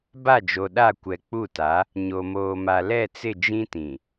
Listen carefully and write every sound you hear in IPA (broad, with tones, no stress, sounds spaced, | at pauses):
b a˦˨ d͡ʒ o˨ ɗ a˦˨ kʷ ɛ˨ k͡p u˦˨ t a˨˦ | ɲ o˨ m oː˨ m a˨ l ɛ˦˨ t͡s ɪ˦˨ d͡ʒ ĩ˦ t ĩ˨